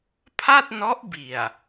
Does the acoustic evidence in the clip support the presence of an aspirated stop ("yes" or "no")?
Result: yes